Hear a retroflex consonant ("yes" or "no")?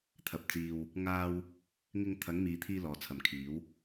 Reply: no